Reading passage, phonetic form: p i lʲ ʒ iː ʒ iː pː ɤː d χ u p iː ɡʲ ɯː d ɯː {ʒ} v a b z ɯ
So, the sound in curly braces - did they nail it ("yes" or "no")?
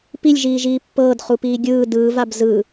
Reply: no